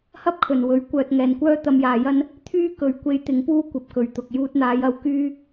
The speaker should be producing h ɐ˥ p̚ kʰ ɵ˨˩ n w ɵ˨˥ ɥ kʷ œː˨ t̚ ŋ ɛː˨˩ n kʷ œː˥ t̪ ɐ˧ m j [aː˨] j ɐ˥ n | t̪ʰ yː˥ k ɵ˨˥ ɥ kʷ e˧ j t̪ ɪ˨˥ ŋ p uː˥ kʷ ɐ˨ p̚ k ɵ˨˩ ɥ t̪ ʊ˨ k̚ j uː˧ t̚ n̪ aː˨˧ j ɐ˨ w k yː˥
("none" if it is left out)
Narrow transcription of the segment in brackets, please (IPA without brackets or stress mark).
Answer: aː˨